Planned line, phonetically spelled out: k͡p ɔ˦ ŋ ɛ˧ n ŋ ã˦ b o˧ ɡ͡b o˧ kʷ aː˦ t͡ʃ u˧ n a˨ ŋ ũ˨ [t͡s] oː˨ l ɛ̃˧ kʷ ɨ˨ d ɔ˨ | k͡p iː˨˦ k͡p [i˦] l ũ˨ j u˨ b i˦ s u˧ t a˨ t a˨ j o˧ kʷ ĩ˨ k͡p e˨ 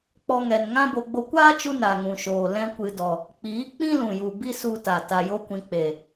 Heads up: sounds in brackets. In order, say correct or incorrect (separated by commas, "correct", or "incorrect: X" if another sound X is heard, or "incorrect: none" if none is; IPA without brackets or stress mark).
incorrect: ʃ, incorrect: ĩ˦